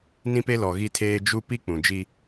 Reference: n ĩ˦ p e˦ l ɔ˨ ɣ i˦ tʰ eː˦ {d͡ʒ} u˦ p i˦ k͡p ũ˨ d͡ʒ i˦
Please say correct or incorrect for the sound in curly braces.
correct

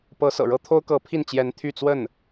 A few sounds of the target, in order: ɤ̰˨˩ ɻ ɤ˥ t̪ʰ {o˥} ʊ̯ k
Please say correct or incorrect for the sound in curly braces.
correct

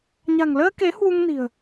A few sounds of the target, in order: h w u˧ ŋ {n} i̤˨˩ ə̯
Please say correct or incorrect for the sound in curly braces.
correct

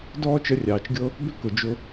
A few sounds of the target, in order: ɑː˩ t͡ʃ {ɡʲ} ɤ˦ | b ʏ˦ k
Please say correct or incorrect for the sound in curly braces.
correct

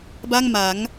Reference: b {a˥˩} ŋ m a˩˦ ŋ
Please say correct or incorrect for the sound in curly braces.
correct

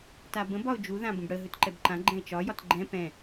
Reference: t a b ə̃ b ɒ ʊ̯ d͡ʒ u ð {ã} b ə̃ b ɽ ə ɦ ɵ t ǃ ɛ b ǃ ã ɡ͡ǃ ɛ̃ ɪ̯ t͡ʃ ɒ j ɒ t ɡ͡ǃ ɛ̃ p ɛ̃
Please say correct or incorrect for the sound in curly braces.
correct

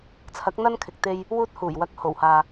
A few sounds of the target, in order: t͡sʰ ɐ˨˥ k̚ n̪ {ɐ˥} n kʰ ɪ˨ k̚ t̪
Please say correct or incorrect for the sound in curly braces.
correct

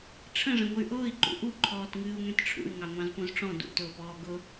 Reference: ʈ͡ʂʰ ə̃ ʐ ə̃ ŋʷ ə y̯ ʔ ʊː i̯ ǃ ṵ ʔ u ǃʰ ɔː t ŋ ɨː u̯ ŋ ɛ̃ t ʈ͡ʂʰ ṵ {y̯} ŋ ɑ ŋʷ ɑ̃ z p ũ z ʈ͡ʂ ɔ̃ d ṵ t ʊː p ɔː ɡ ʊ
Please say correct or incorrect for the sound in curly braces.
correct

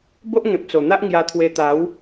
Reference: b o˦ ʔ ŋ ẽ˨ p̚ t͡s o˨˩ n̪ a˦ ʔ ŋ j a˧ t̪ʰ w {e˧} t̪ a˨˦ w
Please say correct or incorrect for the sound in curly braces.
correct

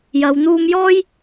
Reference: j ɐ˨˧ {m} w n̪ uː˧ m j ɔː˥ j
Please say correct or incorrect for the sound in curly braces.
incorrect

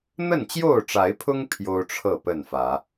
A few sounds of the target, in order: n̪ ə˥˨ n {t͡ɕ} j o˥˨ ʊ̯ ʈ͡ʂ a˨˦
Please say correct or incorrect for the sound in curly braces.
correct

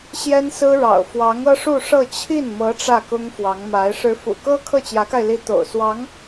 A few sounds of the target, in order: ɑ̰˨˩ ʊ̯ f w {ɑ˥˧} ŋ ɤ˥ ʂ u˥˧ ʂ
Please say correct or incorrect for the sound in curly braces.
incorrect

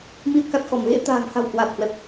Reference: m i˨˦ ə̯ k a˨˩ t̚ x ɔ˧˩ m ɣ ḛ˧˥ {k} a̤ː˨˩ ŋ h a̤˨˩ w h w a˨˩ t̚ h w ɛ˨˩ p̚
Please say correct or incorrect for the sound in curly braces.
incorrect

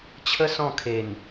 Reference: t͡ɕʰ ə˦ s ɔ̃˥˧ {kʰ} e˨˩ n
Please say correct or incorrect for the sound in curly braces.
correct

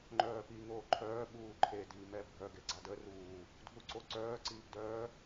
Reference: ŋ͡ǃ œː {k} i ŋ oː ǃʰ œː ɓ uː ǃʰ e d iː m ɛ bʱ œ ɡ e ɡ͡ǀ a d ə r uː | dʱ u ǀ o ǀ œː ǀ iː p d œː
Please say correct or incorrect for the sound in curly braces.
incorrect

